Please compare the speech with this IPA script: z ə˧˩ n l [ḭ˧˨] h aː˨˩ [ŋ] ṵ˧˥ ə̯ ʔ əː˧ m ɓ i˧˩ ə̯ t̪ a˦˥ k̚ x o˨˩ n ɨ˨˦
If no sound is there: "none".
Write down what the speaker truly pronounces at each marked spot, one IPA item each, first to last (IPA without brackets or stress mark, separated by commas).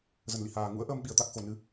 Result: ḭ˧˨, ŋ